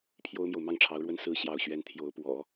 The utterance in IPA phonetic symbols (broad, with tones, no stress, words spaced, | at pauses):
pʰjo˥ʊ̯mjo˨ʊ̯ mɑ˥˩ŋʈ͡ʂʰɑ˧˥ʊ̯ɻwə˥n sɹ̩˥ ɕjɑ˥˩ʊ̯ɕɥɛ˥n t̪ʰjo˧˥ʊ̯pwɔ̰˨˩˦